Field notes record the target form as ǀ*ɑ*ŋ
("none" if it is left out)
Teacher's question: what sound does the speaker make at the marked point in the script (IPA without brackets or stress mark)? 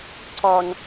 ɑ